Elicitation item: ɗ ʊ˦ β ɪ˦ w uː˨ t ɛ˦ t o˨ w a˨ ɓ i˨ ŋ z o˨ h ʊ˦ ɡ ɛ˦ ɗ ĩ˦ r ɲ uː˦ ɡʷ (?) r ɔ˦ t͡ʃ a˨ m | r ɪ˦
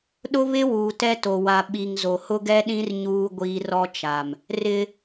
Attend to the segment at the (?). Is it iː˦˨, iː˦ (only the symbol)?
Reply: iː˦